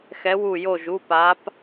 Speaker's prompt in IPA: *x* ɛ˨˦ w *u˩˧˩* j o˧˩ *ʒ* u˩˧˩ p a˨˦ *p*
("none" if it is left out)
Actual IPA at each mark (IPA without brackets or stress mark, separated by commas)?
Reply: x, u˧˩, ʒ, p